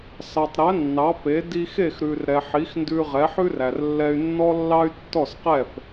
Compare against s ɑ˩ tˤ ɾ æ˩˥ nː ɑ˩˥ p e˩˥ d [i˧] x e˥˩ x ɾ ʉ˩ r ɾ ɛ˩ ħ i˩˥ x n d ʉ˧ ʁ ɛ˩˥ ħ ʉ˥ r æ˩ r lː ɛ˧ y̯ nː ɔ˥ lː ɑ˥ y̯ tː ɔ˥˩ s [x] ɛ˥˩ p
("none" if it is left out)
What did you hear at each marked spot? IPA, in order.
i˧, q

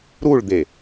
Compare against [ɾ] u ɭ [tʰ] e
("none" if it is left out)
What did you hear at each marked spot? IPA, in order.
ɾ, d̪

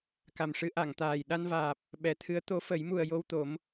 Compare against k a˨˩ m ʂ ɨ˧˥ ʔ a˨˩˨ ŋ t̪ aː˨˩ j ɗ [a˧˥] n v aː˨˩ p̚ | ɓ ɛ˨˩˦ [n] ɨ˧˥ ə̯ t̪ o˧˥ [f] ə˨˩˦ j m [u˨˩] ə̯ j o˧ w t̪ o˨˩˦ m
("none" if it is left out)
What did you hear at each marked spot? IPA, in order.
a˧, t̪ʰ, f, u˨˩

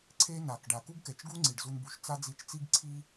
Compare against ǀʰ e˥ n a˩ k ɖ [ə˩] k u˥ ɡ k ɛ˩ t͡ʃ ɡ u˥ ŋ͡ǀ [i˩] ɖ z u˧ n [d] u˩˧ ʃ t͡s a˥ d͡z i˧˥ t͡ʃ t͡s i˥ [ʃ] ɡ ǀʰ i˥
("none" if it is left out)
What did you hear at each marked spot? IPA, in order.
a˩, i˩, b, none

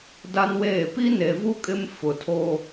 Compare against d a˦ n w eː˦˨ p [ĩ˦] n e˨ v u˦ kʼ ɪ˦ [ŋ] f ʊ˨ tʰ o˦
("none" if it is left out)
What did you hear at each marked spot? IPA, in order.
i˦, m

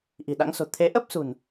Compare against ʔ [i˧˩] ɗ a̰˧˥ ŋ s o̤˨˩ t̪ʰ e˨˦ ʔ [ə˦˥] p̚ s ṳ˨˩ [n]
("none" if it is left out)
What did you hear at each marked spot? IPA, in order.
i̤˨˩, ə˦˥, n

